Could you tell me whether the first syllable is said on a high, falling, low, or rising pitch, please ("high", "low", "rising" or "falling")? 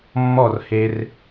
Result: falling